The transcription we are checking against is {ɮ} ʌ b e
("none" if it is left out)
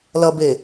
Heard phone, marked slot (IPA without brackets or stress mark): l